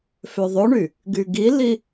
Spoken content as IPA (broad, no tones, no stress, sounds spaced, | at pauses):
f ø ðˤ o ɳ y | ɡ y ɡ i l i